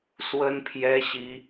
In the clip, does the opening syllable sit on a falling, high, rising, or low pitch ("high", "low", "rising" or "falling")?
high